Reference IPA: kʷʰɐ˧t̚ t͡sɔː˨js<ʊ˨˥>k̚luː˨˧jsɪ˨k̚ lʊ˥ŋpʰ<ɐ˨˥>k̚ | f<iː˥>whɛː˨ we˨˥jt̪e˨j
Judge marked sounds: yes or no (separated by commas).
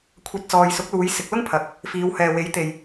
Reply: yes, yes, no